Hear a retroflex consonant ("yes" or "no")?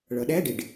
yes